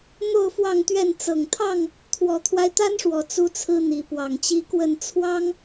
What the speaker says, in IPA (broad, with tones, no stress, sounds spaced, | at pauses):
n̪ o˥˨ ʊ̯ f w ɑ˥˨ ŋ t̪ ɥ ɛ˥˨ n t͡s ɤ˨˩ ŋ t̪ʰ ɑ˥˨ ŋ | t̪ʰ w ɔ˨˩ t̪ʰ w a˦ ɪ̯ t̪ a˦ n ʂ w ɔ˨˩ t͡s u˦ t͡sʰ ɹ̩˦ n̪ i˨˦ p w ɑ˨˩ ŋ t͡ɕ i˦ k w ə˥˨ n t͡sʰ w ɑ˦ ŋ